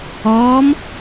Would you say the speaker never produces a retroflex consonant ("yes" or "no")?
yes